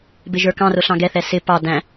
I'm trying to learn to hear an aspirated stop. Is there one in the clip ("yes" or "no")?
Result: no